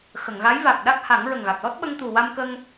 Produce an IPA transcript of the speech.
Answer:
x ə˨˩˨ ŋ ɣ a˧˥ j v a˨˩ k̚ ɗ a˦˥ k̚ h a˨˩˦ ŋ ɹ ə˨˩ ŋ ɣ a˨˩ k̚ l ɔ˦˥ t̚ ɓ ə˧ ŋ t̪ u˨˩ w a˧ m k ə˧ ŋ

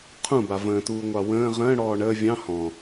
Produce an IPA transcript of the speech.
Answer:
qʰ ũ b a v ə̃ː t uː ŋʷ ɑ w ə̃ː ʁ ə̃ː ɽ ɔː ɳ əː vʲ ɑ̃ h ɔ̃

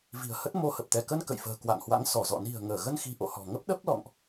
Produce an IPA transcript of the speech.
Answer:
v i̤˨˩ ə̯ h ə˦˥ t̚ m o˧ h ə˨˩ p̚ t̪ ɛ˧˩ k ə˧ n k ə̰˧˨ j f ə̤ː˨˩ k w a̰˧˨ ŋ h w a̰˧˥ ŋ s ɔ˧˩ z ɔ̰˧˨ n i̤˨˩ ə̯ ŋ əː˧˩ ɣ ə˧ n x i̤˨˩ ʔ o̰˧˨ h ɔ̤˨˩ ŋ ə˦˥ p̚ ɗ ə˦˥ p̚ l ɔ̰˧˨ ŋ ʔ

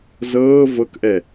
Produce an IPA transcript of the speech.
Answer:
z ɤː v ɤ k ʔ ɛ

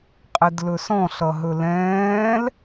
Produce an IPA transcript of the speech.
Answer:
qʼ ɛ d l ɵ s ɔ̃ ɬ ʌ ɦ ɵ l ɛ̃ː l

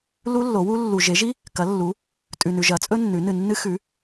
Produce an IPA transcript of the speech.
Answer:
l u˦˥ lː o˩˥ w u˦˥ lː u˨ ʒ e˩˥ ʒ i˦˥ | k ɐ˩˥ lː u˩˥ | tʼ ʉ˨ n ʉ˨ ʒ ɐ˩˥ t͡sʼ ɵ˦˥ nː ʉ˩˥ n ɨ˨ nː ɨ˦˥ x ʉ˩˥

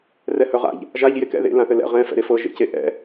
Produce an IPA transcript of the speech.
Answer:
r ɛ h œ ʁ a̰ ʎ | ʒ a ʎ j e k ɛ̰ ð ḛ l ã θ ɘ l ɛ̰ ʁ ɛ̃ f ɛ̰ ɾ e f ɤ ʒ ḛ c e ʔ ɛ̰

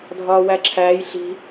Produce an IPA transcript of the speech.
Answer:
dʱ ɒː w æ ǁʰ æː j ɬ i̤

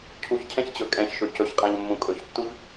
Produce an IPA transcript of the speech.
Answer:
cʰ u ç cʰ ɛ̃ ç t͡ɕ ɵ kʼ ɛ̃ ç ʃ ɵ c ɵ ç qʼ ã ʎ mː ũ kʼ ɵ ç tː u ʎ

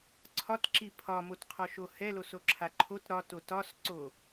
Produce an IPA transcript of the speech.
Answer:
ǀʰ ɒ t ǁ i pʰ ɒ m o t qʰ ɔ ʃ o h ɛ l o s o ǁʰ a ǃʰ o t ɾ ɒ t o t ɒ s ǀ o

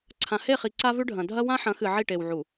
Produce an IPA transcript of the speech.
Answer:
ǀʰ ã˨ h e˦˨ χ i˨ ǀ a˦ v ʉ˦ ɖʱ ɐ̃˨ dʱ ɐ˦ w ã˦ ħ ɐ̃˨˦ x ɨ˨ ʕ i˦˨ ʈ e˨ w ʕ u˨

